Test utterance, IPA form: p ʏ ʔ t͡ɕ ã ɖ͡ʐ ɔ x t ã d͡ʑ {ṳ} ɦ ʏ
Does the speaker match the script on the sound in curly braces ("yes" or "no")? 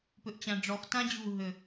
yes